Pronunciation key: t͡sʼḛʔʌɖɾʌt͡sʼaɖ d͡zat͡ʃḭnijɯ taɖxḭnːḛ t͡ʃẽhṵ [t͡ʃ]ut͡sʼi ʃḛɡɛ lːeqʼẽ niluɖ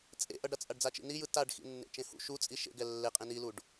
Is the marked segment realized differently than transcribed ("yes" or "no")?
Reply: yes